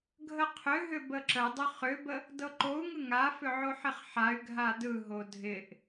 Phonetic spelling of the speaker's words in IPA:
ɡʱəqʰʏɦʏ bəǁədˤʏ χʏbə | dɤǃou̯ŋɯ ŋafʏ ʕoħɪχħay̯ɡʱa dɯɦo dʱɪʔ

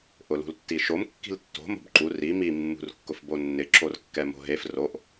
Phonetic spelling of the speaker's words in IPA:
ʔʊlṳltːiʃom kːi̤ltːo̤ mo̤bǃu ri mi mːṳrkːʊfbonːɪ ǁorkːɛmo̤ɦef roʔ

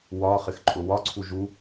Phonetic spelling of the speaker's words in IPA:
wɒ χɪxǃʼʊwɒǀʰu ʒu

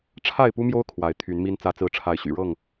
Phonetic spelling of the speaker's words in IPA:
ʈ͡ʂʰa˥˨ɪ̯pu˦mjo˦ʊ̯ kʰwa˨˦ɪ̯t̪ʰy˨˦nmi˦n t͡sä˨˦t͡sɹ̩˨˦ʈ͡ʂʰa˨˦ɪ̯ ɕy̰˨˩ɻɤ˥˨ŋ

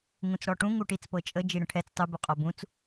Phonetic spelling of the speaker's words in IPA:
ŋũt͡sɽɔʈũ ŋuʈit͡s pɤt͡ʃʼə d͡ʒiɽə̃ʈʰɛt͡s tˤu buqʼɔbũt͡s

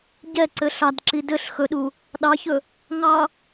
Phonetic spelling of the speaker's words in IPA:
ɟɛǀɘ ɬɑdǁi dɘɬ xɵɗu | ɗɑçɵ | ŋɑ

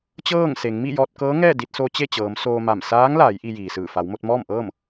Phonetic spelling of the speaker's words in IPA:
t͡ɕɤː˥˨ŋse˩˧ŋ mi˥˨jɔː˧t̚kɤː˧˥ ŋɛː˥˨di˧t̚so˧ t͡ɕe˥˨t͡ɕɤː˩˧m soː˧ma˧˩m saː˧˥ŋlaː˩˧j ʔi˧jiː˩sɯː˧˩ fa˩˧wmo˧t̚mɔː˥˨mʔɤː˥˨m

